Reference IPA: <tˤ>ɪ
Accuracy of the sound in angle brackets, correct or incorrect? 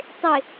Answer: correct